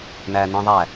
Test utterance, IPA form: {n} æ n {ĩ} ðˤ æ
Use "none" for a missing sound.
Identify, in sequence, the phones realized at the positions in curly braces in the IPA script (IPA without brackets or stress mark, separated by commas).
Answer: n, ĩ